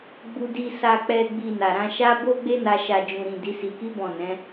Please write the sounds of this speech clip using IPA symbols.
ɡ͡b u˧ d i˧ s a˨ k͡p ɛ˨ ɡ͡b i˨ n a˨ ɾ ã˧ ʃ a˦ b o˦ ɡ͡b e˦ n a˧ ʃ a˨ d͡ʒ ũ˨ ɾ ĩ˨ d i˨˦ s i˧ k i˦ b ɔ̃˦˨ n ɛ̃˨˦

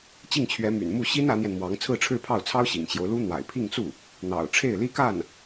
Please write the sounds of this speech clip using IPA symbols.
t͡ɕ i˥˩ ŋ t͡ɕʰ ɥ ɛ˧˥ m y̰˨˩ n m u˥˩ ɕ i˥ n ä˧˥ n̪ j ɛ˧ n m w ɑ˧˥ ŋ t͡sʰ ɹ̩˥˧ ʈ͡ʂʰ ɻ̩˥˧ pʰ ɑ˥˩ ʊ̯ t͡sʰ ɑ˥ ʊ̯ ɕ ḭ˨˩ ŋ t͡ɕ j o˦ ʊ̯ l u˥ n̪ w a̰˨˩ ɪ̯ pʰ i˥˧ ŋ t͡s u˥˩ | n̪ ɑ̰˨˩ ʊ̯ ʈ͡ʂʰ e˥˩ ɪ̯ l i˥ k a˥˩ n

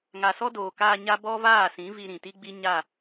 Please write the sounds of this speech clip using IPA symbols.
ŋ a˨ s ɔ˦ d oː˨ k aː˧ ɲ a˦ b ɔ˦ v aː˦˨ s ĩ˨˦ v i˧ ɾ ĩ˨ t i˦ ɡ͡b i˦ ɲ a˦˨

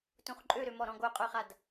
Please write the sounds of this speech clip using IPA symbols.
t ũ χ ǃʼ ø ɾ ø m ɔ ɾ ɔ̃ ɡ o qʼ œ χ a d

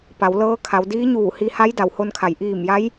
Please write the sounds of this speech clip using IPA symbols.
p a˩˧ w l ɤː˧˥ kʰ a˩˧ w d iː˧˥ ɲ uː˧˩ h i˧ h a˧˥ j d a˩ w h o˧ n kʰ a˩˧ j ʔ iː˧˩ m j a˧˥ j

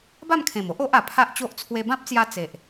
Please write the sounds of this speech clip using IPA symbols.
b a˥˧ m kʰ ẽ˨˩ m o˦ ʔ o˦ ʔ a˨˩ pʰ a˦ ʔ t͡ɕ o˦ ʔ t͡sʰ w e˧ b ã˦ p̚ t͡s j a˧ t͡s e˨ ʔ

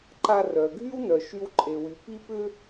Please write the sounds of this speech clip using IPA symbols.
ǃ a˧ r œ˩ ɡʱ y˥ w n œ˩ ʃ y˧ w ǃʼ e˩ w y˩ p i˥ p ʏ˥

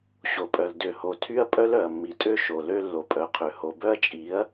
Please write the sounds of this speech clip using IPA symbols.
ɕ o˨ pʼ œ˨ l d ø˨ h o˨ tʰ y˦ ɐ̯ pʼ œ˦ l œ˨ ɐ̯ mː i˨ tʼ ø˦ ʃ o˨ l ø˦ lː o˨ pʼ œ˨ qʰ ø˨ h o˨ b œ˦ ɐ̯ t͡ʃʼ i˨˦ ɐ̯

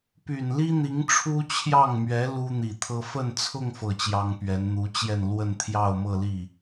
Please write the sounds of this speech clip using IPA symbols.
p y˨˩ n l i˥ n̪ i˧˥ ŋ ʈ͡ʂʰ u˥ t͡ɕʰ j ɑ˥˩ ŋ m ɥ ɛ˧˥ l u˥ n̪ i˨˩ t̪ʰ ɤ˥ f ə˥˧ n t͡sʰ ʊ˥˧ ŋ f ɤ˥˩ t͡ɕ j ɑ˥ ŋ p ɥ ɛ˧˥ n n̪ u˧˥ t͡ɕ j ɛ˥˧ n l w ə˥˧ n t̪ʰ j ɑ˥˧ ʊ̯ m ɤ˥˧ l i˥˩

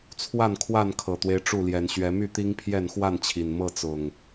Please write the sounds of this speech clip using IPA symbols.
t͡sʰ w a˥˨ n kʰ w a˥˨ n kʰ ɤ˨˩ t̪ w e˦ ɪ̯ ʈ͡ʂ u˥˨ l j ɛ˨˦ n ɕ ɥ ɛ˨˦ m y˥˨ t̪ i˦ ŋ pʰ j ɛ˥˨ n x w a˥˨ n t͡ɕʰ i˨˩ n m ɤ˥˨ t͡s ʊ˨˩ ŋ

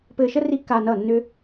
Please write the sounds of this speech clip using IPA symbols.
p ɘː˧ ʃ ə˦ r i˦ kː aː˧ n ʌː˦˨ nː ʏ˦

